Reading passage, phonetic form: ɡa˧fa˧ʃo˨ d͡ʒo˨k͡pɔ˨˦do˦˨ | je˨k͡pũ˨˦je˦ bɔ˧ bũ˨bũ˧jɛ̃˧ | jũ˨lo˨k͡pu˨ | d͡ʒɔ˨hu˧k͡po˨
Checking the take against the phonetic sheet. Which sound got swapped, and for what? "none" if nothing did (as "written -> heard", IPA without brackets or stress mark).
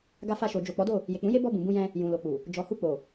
none